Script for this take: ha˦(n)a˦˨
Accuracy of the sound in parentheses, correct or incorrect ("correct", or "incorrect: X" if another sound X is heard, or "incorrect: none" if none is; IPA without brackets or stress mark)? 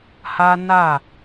correct